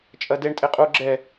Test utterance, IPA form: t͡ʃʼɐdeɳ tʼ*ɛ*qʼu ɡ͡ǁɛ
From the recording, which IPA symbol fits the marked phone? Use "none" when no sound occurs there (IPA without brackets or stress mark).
e